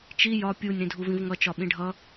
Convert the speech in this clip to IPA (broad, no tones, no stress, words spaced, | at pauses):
t͡ʃi jɒ pʲunʲ ɾĩdʱuvĩvŋʌ t͡ʃɒɓĩɖʱʌ